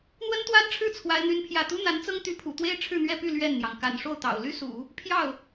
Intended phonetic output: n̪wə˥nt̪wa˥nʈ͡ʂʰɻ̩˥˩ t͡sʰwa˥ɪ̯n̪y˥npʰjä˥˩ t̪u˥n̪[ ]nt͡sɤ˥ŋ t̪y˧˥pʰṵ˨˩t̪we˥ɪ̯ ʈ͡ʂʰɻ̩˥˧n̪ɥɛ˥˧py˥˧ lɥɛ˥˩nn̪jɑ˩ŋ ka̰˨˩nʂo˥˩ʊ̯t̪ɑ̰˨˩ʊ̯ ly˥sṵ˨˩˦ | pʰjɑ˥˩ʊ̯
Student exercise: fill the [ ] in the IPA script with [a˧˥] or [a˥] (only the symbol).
a˧˥